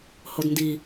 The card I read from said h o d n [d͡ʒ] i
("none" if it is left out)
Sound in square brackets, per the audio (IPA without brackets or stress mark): d